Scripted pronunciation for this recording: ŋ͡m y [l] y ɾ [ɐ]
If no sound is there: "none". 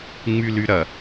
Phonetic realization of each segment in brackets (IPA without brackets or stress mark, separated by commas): l, ɐ